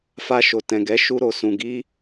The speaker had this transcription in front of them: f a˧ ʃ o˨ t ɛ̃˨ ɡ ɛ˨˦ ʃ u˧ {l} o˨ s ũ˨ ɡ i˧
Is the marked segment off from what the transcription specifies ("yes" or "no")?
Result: yes